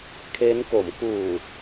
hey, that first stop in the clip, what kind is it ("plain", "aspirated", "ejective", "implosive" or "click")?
aspirated